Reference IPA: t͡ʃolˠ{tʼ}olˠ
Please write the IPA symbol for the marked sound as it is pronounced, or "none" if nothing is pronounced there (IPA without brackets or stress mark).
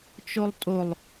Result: tʼ